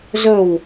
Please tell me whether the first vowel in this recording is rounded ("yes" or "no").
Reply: yes